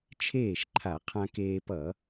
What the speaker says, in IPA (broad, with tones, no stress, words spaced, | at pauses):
t͡ʃʰeː˥˩ʃǃʰa˧˩˧ qʰã˧keː˧pʌ˧˩˧